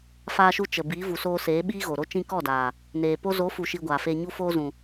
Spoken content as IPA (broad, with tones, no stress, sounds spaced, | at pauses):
f aː˧ ʃ u˧ t͡ʃ ə˨ b iː˨˦ v u˨ s oː˧ s eː˨˦ ɓ iː˦ ɣ o˨ ɾ o˦ t͡ʃ ĩ˧ k ɔ˦˨ d aː˨ | n eː˨ p o˦ z o˨˦ f u˨ ʃ iː˧ ɡʷ aː˨ f eː˧ ɲ u˦ f oː˦ z ũ˨